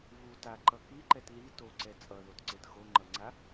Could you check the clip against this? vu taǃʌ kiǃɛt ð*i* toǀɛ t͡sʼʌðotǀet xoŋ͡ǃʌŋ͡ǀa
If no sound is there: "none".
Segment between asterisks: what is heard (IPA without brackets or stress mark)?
i